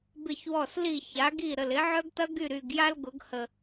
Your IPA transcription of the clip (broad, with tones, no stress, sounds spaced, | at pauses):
b ɪ˧˩ ç w ɔ˧˩ s l i˧˩ ç a˩˧ ɡ i˧˩ ɾ ə˩ l ɪ˩˧ ʕ œ˧ ɡ t ɐ˧ ɡ y˧˩ ɾ y˩ ɡ j a˧ l ɡ ʊ˩˧ ɡ h ə˩